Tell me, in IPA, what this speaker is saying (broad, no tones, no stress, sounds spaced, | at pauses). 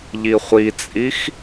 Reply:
ʎ i χʷ i t͡sʼ i x